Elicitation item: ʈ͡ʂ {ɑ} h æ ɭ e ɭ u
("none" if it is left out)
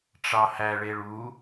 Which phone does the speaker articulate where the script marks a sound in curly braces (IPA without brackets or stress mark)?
ɑ